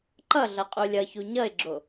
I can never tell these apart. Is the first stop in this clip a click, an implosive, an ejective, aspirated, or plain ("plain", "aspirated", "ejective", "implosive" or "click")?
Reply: click